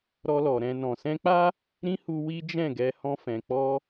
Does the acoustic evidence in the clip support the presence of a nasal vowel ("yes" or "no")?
yes